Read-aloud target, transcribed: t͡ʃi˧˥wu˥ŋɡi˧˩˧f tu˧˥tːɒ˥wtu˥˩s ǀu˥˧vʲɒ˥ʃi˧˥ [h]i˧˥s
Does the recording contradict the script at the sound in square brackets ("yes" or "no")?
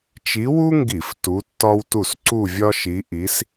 yes